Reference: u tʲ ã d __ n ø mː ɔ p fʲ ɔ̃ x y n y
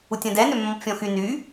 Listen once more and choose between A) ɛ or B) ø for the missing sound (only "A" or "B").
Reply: A